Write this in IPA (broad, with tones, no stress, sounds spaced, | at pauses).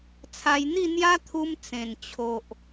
t͡sʰ a˧ j n̪ i˥˧ n̪ j a˦ t̪ʰ u˧ m t͡s ẽ˨˩ n t͡ɕʰ o˨ ʔ